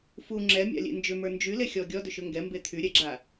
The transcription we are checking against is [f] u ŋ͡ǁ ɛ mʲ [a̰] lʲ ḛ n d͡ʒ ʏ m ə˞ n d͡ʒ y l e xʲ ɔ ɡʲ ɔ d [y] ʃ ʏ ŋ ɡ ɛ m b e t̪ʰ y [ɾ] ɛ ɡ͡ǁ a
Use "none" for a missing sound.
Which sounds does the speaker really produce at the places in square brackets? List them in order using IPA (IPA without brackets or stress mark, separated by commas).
f, a̰, ʏ, ɾʲ